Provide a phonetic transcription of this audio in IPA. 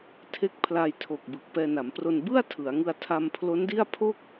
tʰ e˦˥ k̚ pʰ l a˧ j tʰ o˨˩ k̚ b ɯ˨˩ k̚ p ɛː˧ n a˩˦ m p r o˧ n b ɯ˥˩ a̯ tʰ ɯ˩˦ a̯ ŋ ɯ˧ a̯ tʰ a˧ m pʰ l o˦˥ n d i˥˩ a̯ pʰ o˥˩ k̚

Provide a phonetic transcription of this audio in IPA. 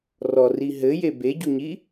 r ɔ r i ɦ ɘ j e b e ɟ u ɲ i

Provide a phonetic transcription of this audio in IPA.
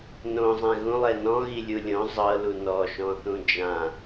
n õ zˤ ɛ̃ ɣ ũ lˠ ɛ n ɔ̃ ɣ i lʲ u lʲ õ zˤ ɤ l u n ɔ ʃ ɔ̃ θ ũ d͡ʒ ã

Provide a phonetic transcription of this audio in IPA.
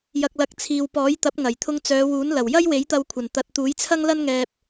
j ɐ˨ k̚ l ɐ˨˥ k̚ t͡sʰ iː˨ w p ɔː˨˥ j t̪ ɐ˨˥ p̚ ŋ ɐ˨˩ j t̪ʰ ʊ˧ ŋ t͡s œː˨˧ w uː˨˥ n l ɐ˨˩ w j ɐ˥ j w e˨˥ j t̪ ɐ˧ w kʷʰ ɐ˨˩ n t̪ ɐ˨ t̚ t̪ uː˨˥ j t͡sʰ ɐ˥ ŋ l ɐ˥ n ŋ ɛː˧ p̚

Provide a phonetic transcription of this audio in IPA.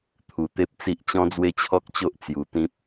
t̪ʰ u˧ t̪ e˦ p̚ t͡s i˦ ʔ t͡ɕ ɔ̃˦ d͡z w e˦ t͡ɕʰ ɔ˦ k̚ t͡ɕ o˦ ʔ t͡s j u˧ t̪ ĩ˦ p̚

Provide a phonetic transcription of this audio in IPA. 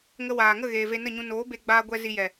ŋ ə˧ w aː˨ ŋ ə˦˨ ɣ eː˨ v e˧ n ə˦˨ ɲ ũ˧ n oː˨˦ b e˧ ɡ͡b aː˧ ɡʷ ɛ˧ z i˧ j ɛ˨

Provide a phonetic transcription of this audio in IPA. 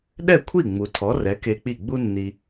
ɗ ɛ˥˩ kʷʰ i˥˩ ŋ͡m u˩ tʰ ɔ˩˥ r ɛ˩˥ k e˧ k͡p i˥˩ ɡ͡b u˥ nː i˧

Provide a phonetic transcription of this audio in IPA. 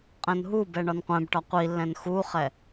qʼ ɛ̃ n ɦ u b ɛ ɳ ɒ n qʷ ɛ̃ b ʈ ɒ qʷ i lː ɛ̃ n x u χ ɛ

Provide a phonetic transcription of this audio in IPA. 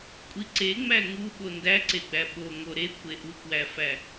kʷʼ i ǀ e ŋ͡m æ ŋ u ɓ o n d æ ǀ e ɡ͡b æ ɓ o ŋ o ɾ e kʷʰ e ʔ u k w æ f æ

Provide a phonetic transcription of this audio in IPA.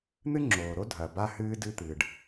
n̪ ɨ˥ ŋ͡ǁ oː˩ ɾ o˥ dʱ ɐ˩ b a˥ h ɨː˥ d ɨ˥ t̪ ɨː˩ ɖ

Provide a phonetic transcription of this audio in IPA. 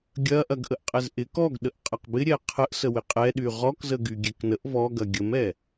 ɡʲ ɐ ʔ ɐ ɡ ʔ ə ʔ qʼ ɛ z ʔ ɪ k ɔ ɡ ɗ ə ʔ qʼ ɐ q b ɪ ɾʲ ɛ qʰ ə ʔ s ə w ɪ qʼ ɛ ɗ y ʁ ɔ k z ə ɡ y ɡʲ ɛ k n ə ʔ v ɔ ɡ ɐ ɡʲ ə m ɛ

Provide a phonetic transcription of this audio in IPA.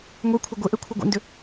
ŋʷ ɛ kʷʰ œ ɡʷ e ʔ ɛ kʷʰ œ ɡʷ ɛ̰ n d ʏ

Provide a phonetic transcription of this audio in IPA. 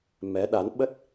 m ɛ˨˦ ɗ a˨˦ n ɓ ə˦˥ t̚

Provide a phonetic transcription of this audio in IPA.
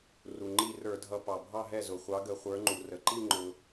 r u˩ ŋ͡ǃ i˥˩ r ə˞˧˩˧ dʱ ʌ˨˥ p ɑ˩ bʱ ɑ˥˧ ɦ ɛ˥˩ z ʊ˩ χʷ ɑ˨˥ ɡ ə˧˩˧ χʷ ə˞˨˥ ŋ͡ǃ u˩ r ə˩ ǃ i˥˧ ŋ͡ǃ ʊ˩

